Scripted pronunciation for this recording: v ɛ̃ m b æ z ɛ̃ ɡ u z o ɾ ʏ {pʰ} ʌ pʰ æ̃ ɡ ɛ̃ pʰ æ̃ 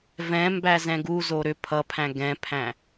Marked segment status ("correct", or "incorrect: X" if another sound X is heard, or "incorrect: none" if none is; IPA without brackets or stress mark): correct